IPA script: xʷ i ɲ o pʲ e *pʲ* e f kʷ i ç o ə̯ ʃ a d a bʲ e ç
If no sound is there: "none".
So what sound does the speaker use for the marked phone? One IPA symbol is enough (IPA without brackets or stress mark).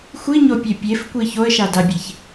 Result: pʲ